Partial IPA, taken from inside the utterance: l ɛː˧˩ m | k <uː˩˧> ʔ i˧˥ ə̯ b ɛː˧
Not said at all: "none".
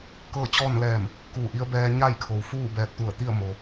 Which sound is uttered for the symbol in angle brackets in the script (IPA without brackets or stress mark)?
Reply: uː˧˩